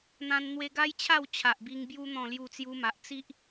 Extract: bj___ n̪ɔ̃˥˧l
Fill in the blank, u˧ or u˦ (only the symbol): u˦